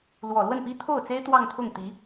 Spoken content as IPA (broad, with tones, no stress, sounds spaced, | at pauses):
l w ɔ˨˩ l w ə˥˩ n p i˥ t̪ʰ o˥˩ ʊ̯ t͡s e˥ ɪ̯ t̪ w ɑ˥˧ ŋ t̪ʰ ʊ˥˩ ŋ t̪ i˧˥